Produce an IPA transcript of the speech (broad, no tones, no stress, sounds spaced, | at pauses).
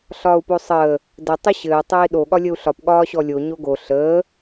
ɬ ɒː u̯ p o sˤ əː | d ɘ tˤ ɘ ɕ ɘː tˤ ɘː i̯ ɗ o ɠ ɒ lʲ ə u̯ ɬ ɒ p ɠ ɒː ɕ ɔ lʲ o ɲ o ɡ o ɬ əː